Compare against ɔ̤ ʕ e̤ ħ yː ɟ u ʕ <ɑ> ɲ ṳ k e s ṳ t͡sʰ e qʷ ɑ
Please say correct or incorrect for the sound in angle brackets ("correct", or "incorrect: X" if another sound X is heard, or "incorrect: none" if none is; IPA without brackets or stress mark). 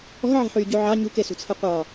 correct